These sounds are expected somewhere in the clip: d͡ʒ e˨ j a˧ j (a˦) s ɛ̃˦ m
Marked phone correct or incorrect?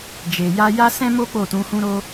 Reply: correct